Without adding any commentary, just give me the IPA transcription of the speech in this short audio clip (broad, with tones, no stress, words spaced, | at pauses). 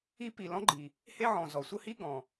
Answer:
i˥pi˩ lɔ̃˥ɡ͡ǃi˩ | he˥ʕɔ̃˩zɔ˩ sʷə˥hi˥ ɡɔ̃˩